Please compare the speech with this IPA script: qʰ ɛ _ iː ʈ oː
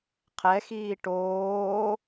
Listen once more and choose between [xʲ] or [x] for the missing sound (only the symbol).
x